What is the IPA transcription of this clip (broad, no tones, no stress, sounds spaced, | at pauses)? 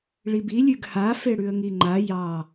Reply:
ɭ i b i lʲ ʉ ɡ h a f e ɽ ʉ ə̯ ŋ i ŋ͡ǃ a j ɑ